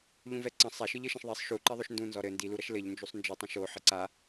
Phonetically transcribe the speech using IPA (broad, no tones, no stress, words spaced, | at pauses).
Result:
ʎũvɛǀɐ̃ sˤaʃɨʎɘʃãʃ ðˤɛsˤ ʃu ǃiðˤoʃndũnzɔ ɾɘ ndiluɾɐʃ lɘʎnd͡ʒusˤ nd͡ʒɨtˤɐ̃ ʃo ħɘǀa